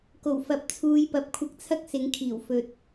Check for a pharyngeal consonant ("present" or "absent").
absent